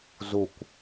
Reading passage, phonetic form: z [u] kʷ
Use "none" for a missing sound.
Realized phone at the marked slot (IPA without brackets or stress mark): u